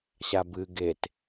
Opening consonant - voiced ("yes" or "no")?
no